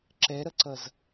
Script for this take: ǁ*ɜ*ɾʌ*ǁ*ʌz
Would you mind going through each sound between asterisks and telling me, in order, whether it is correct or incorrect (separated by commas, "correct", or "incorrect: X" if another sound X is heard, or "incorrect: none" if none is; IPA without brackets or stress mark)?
incorrect: ɛ, incorrect: ǀ